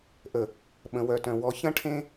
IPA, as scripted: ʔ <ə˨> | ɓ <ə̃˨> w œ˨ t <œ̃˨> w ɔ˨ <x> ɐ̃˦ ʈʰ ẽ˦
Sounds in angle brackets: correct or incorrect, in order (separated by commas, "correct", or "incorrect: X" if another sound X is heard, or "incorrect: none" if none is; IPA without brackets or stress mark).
correct, correct, correct, incorrect: ç